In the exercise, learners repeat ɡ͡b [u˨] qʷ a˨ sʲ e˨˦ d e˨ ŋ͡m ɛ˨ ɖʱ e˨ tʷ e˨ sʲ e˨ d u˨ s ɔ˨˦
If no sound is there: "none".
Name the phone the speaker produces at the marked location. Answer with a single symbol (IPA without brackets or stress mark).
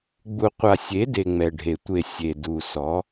u˨